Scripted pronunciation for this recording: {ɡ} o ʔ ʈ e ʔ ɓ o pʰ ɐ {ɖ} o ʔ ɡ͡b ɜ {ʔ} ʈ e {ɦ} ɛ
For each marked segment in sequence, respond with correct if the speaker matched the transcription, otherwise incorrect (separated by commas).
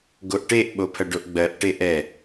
correct, correct, correct, incorrect